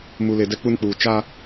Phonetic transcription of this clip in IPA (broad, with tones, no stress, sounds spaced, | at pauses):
m u˨ l e˨ d ɛ˦ k͡p u˦ n k͡p uː˨ t͡ʃ a˦